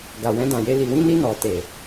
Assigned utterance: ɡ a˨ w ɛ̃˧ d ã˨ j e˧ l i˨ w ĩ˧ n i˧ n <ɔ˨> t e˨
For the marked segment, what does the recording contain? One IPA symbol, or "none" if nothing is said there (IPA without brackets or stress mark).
ɔ˨